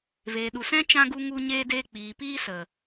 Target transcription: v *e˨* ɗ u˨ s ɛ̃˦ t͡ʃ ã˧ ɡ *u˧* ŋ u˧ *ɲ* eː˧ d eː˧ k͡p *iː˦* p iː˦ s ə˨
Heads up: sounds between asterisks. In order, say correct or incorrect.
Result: incorrect: eː˨, correct, correct, incorrect: iː˨

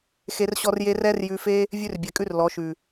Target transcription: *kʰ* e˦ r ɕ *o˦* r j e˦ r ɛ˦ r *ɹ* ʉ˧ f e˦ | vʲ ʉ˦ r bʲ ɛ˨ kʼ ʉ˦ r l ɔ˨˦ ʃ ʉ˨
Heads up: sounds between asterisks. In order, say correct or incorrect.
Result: incorrect: x, incorrect: ɔ˦, incorrect: j

